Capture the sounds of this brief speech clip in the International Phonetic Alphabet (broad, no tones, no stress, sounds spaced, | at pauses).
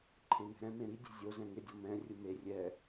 ǃʰ ẽ n ɛ̤ ɾ ɛ̃ m ẽ ɾ i dʲ e̤ zʲ o z ɛ̃ ŋ ɪ dʲ ɔ m ɛ̃ rʲ ʊ m e rʲ ɛ